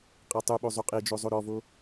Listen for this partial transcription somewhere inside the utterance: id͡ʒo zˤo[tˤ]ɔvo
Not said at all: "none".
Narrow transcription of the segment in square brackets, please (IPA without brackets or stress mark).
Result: ɾ